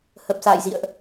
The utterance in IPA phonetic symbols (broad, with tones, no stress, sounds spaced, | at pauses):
h ə˨˩ p̚ s a̰ː˧˨ j z ḭ˧˨ ə̯ ʔ